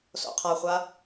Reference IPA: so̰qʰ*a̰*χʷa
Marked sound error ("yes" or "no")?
yes